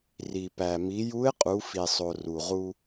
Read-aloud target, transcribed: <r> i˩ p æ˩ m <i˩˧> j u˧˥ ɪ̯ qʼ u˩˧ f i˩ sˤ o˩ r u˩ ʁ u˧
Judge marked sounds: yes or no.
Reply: yes, yes

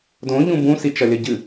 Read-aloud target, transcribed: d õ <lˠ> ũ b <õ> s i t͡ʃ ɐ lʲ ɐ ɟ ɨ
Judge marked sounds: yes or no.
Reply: no, no

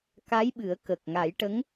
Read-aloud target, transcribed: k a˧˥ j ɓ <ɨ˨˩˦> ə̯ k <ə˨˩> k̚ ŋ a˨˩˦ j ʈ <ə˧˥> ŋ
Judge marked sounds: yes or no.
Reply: yes, yes, yes

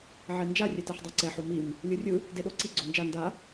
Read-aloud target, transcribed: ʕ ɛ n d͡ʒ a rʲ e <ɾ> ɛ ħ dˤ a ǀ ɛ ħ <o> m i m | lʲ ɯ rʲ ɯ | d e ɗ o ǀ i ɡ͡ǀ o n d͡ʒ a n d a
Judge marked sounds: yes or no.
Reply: no, yes

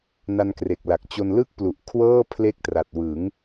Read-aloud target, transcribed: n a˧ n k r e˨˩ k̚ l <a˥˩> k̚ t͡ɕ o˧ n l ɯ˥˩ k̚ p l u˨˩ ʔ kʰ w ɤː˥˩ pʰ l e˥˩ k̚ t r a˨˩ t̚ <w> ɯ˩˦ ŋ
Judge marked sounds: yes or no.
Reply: no, yes

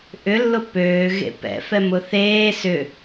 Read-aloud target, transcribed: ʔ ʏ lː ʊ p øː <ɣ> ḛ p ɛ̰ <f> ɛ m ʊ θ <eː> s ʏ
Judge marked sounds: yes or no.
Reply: yes, yes, yes

